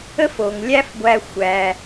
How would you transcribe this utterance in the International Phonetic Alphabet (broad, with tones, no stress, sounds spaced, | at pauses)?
ə˦ f o˩ ŋ lʲ æ˦ f ɡʷ æ˨ xʷ æ˩